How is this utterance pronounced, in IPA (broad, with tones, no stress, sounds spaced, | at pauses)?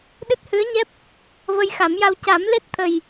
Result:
ɗ ɨ˦˥ t̚ h ɨ˧˥ ə̯ ɲ ɛ˦˥ p̚ | v ə˧ j x a˨˩˦ m j a˧ w c a˨˩˦ m l e˦˥ t̚ t̪ʰ ə˨˩ j